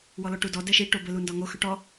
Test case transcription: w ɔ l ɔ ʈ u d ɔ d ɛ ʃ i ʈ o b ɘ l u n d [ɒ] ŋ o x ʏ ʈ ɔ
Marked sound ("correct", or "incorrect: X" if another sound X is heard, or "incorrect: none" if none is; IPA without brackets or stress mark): correct